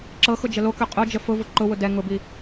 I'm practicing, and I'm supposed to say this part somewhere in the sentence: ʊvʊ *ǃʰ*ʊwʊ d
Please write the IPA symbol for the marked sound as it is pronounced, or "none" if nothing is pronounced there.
ǃ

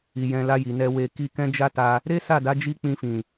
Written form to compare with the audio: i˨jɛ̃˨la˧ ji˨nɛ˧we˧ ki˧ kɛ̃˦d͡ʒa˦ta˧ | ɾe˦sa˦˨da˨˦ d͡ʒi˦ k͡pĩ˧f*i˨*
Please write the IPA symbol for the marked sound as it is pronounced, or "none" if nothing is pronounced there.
ĩ˨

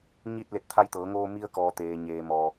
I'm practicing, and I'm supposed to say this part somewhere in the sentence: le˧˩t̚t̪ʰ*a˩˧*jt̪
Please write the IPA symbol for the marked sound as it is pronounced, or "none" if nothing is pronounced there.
a˧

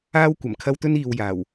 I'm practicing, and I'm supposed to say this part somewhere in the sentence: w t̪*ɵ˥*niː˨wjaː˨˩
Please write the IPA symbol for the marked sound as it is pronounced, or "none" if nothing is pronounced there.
ɵ˥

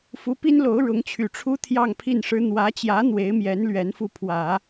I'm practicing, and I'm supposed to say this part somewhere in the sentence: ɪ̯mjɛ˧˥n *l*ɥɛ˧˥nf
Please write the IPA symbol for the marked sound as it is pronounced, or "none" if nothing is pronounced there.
l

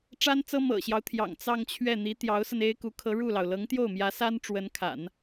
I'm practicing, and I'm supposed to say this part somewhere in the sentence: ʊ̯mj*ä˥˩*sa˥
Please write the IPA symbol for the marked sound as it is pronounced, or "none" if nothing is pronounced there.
ä˧˥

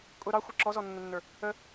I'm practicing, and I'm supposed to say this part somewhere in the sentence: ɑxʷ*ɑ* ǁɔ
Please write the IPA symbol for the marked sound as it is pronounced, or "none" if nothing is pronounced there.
ʌ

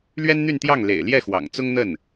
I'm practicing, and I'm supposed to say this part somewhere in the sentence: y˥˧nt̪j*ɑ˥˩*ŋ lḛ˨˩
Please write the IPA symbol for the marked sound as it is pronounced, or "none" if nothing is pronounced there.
ɑ˥˩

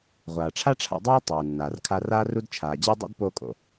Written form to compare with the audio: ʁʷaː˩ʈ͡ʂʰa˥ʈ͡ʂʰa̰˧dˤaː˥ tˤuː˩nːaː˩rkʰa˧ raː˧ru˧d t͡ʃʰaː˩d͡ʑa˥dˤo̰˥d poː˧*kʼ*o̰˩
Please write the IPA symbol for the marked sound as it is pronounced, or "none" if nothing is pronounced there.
kʼ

